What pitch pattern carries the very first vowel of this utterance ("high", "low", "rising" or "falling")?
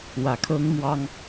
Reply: low